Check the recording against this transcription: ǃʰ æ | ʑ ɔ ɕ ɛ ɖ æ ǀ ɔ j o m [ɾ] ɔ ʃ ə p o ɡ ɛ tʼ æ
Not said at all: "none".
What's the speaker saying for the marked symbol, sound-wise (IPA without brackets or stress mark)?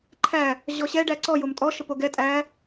tʼ